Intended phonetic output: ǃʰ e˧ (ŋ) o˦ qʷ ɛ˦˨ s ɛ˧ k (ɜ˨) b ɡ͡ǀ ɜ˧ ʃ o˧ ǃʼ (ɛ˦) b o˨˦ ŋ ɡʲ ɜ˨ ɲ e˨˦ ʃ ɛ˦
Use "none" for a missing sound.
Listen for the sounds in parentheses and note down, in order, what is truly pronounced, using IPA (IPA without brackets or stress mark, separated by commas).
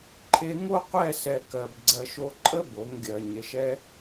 ŋ, ɜ˨, ə˦